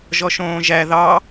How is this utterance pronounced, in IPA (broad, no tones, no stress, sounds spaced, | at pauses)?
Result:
ʒ ɔ ʃ õː ʒ æ ð ɑ